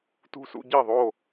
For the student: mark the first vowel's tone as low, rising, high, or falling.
high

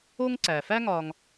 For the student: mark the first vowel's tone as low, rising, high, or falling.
high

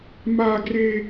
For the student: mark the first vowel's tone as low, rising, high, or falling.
high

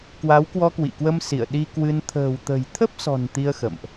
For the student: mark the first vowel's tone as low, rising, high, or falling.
rising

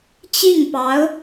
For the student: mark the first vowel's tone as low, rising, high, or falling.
falling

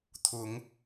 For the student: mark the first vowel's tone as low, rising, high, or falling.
rising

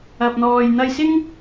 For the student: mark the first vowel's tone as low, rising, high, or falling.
low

